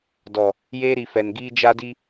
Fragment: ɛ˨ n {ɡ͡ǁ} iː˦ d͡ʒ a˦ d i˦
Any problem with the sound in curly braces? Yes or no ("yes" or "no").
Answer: yes